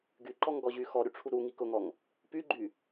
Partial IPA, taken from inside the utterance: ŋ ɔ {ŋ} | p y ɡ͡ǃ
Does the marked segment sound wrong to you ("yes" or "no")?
no